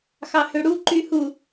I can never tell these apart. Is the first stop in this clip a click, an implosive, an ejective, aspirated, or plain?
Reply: click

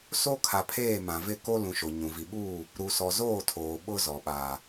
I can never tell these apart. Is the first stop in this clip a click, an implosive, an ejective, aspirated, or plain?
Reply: aspirated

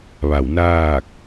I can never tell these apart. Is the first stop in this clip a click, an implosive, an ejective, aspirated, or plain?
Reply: plain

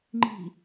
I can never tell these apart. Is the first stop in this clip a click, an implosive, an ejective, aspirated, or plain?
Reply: click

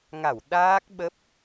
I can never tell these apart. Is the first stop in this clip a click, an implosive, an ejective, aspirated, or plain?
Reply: implosive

